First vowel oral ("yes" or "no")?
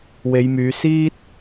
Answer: yes